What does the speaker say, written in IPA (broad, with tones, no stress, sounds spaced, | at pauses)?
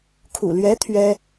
kʰ ṵ˨˩ l ɥ ɛ˧˥ t̪ʰ ɥ ɛ˥